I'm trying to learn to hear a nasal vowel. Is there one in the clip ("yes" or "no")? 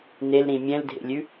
yes